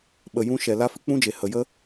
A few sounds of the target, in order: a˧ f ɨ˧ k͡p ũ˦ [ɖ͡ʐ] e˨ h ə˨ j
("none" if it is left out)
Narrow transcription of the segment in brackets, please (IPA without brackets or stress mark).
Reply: d͡ʒ